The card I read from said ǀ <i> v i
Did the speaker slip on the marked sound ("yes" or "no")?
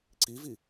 no